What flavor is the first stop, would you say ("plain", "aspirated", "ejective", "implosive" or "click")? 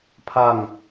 aspirated